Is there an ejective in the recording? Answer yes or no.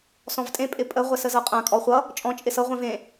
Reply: yes